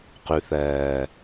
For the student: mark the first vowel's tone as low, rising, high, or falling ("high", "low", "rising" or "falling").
low